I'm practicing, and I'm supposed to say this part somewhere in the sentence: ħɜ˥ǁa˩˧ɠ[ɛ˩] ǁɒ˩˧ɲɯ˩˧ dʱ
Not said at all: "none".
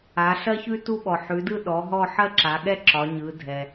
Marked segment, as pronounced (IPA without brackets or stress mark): ɛ˥